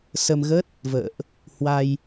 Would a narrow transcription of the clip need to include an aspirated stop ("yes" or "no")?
no